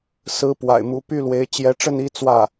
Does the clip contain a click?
no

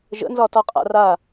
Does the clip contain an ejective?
yes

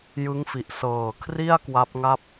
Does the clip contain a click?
no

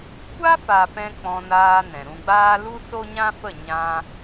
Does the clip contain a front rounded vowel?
no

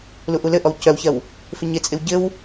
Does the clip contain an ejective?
yes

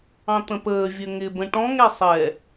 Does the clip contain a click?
no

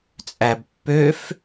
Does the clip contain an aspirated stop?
no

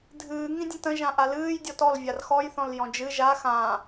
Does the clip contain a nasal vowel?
yes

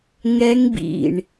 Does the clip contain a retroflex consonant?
yes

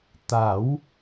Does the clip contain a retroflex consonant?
no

